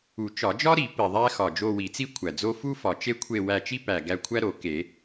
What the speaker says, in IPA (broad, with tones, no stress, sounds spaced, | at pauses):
u˨˩˦ t͡ʃ ɒ˨˩˦ d͡ʒ ɒ˥ ɾ i˨˩˦ p i˨˩ ðˤ æ˥ x ɒ˨˩ d͡ʒ o˦˨ w i˨˩˦ t͡s i˥ kʷʰ æ˨˩ d͡z o˥ f u˥ f ɒ˨˩ t͡ʃ e˥ kʷʰ e˦˨ w æ˦˨ t͡ʃ i˥ p æ˨˩ ɡ æ˦˨ kʷʰ æ˥ ɾ o˨˩˦ k e˨˩˦